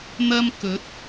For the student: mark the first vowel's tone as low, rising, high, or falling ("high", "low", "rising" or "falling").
high